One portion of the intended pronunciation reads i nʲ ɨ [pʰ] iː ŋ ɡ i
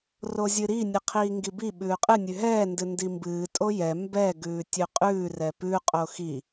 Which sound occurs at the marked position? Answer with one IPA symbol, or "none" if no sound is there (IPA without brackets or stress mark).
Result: qʰ